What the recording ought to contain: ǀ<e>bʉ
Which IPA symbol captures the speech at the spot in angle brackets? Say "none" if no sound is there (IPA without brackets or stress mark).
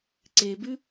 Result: e